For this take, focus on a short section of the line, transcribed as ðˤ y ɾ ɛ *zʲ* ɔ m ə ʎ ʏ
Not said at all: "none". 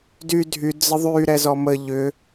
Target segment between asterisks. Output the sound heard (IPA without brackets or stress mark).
z